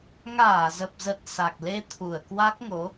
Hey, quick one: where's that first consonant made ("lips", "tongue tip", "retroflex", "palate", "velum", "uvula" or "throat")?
velum